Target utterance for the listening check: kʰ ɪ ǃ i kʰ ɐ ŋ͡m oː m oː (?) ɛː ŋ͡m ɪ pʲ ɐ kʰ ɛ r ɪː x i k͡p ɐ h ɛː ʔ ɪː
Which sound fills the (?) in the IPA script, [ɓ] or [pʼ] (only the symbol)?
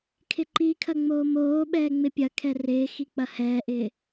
ɓ